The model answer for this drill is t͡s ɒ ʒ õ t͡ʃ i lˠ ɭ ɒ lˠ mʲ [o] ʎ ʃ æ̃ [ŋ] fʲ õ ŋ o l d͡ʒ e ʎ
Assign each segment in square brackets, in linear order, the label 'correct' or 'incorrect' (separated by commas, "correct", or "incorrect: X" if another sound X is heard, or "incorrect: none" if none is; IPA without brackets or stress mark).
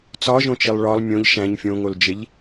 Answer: incorrect: õ, incorrect: ɲ